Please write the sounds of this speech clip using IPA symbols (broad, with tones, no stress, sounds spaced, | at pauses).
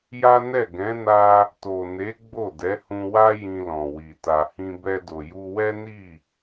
j a˦ n ɛ˦˨ ɡ ɛ̃˨˦ n a˧ | t o˨ n e˨˦ ɡ͡b o˦˨ d ɛ˨˦ h ũ˧ w a˦ j ĩ˧ l ɔ̃˨ w i˨ t a˨ h ĩ˧ b ɛ˧ d o˨ j u˧ w ɛ˦ n i˦˨